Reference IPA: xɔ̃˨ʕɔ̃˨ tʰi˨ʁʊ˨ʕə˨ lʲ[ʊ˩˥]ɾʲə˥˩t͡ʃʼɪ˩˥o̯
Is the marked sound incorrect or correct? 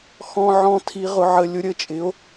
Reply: correct